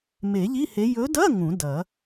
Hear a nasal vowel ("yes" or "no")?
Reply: yes